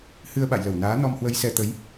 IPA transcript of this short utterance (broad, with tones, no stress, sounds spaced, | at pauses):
h ɨ˧ ə̯ ɓ a̰˧˨ j l ə˧˩ w n aː˨˦ n ɔ˧ m h w ə˧ j s ɛ˧ t̪ ə˨˦ j